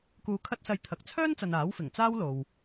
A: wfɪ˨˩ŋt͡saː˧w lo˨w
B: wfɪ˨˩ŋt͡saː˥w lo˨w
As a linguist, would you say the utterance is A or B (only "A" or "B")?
B